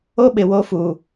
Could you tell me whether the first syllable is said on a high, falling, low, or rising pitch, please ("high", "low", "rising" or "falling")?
high